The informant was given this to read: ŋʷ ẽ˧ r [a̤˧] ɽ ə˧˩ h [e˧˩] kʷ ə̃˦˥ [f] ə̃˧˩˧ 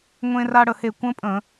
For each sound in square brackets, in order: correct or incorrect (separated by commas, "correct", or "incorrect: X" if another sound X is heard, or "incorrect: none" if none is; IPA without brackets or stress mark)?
incorrect: a˧, correct, incorrect: pʼ